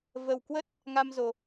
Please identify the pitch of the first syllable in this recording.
low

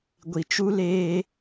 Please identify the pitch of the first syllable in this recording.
low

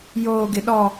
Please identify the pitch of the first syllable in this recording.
high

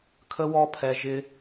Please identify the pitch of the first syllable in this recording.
high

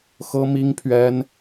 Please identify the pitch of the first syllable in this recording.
high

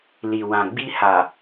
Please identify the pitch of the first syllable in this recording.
low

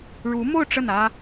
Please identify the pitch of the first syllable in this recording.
rising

